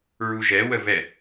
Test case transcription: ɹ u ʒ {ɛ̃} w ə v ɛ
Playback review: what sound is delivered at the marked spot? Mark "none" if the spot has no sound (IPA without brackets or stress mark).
ɛ